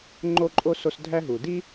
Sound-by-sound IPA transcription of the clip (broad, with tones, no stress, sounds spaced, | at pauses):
ŋ͡ǃ o˥ ǃʼ o˥ s o˦ s dʱ æ˥ ɦ u˩ d i˥